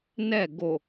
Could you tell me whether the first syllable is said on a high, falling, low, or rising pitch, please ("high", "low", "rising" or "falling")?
falling